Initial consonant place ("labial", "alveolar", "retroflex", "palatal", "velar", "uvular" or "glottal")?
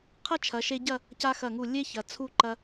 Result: uvular